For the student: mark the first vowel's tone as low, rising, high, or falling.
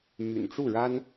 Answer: low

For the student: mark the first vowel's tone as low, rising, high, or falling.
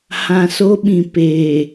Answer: low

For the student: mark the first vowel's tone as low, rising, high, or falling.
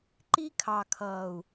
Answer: high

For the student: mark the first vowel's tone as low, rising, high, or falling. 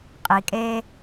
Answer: low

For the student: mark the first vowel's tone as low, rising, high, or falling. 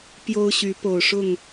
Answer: high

